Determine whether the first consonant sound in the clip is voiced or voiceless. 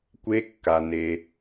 voiceless